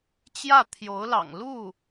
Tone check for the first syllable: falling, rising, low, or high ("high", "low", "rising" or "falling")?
falling